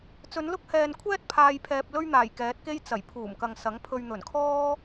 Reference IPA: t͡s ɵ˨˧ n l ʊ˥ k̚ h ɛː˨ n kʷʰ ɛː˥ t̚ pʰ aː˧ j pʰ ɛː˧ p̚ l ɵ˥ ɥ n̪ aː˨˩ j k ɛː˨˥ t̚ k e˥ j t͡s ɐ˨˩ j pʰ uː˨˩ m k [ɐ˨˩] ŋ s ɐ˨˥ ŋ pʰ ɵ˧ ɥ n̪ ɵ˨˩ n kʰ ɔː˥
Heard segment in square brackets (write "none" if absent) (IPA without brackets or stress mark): ɐ˨